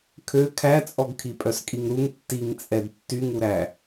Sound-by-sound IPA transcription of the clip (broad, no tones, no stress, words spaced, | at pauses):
kʰø kʰæt͡sʼɔɡkʰi pʼœskʼiŋɾuŋ tːiŋt͡sʼɛd tːyŋuɾæ